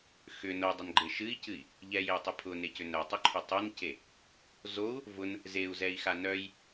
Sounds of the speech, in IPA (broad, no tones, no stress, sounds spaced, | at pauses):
x ʏ n o dˤ ʏ n ɡ͡ǃ e ʃ ɨ i̯ c ɨ i̯ | ʎ ɛ j e j tˤ œ pʰ ʊ n e c ʏ n œ tˤ ʏ ǃʰ ʏ tˤ ʊ n c e | z o u̯ | v ʊ n | z e u̯ z ɛ i̯ x a n œ j